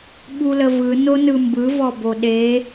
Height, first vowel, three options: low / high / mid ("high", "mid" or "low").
high